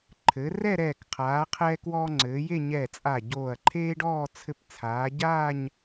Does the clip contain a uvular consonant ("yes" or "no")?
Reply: yes